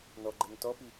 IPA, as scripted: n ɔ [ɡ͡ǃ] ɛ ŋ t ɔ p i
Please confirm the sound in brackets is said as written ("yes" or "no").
yes